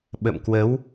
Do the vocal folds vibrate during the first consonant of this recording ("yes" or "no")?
yes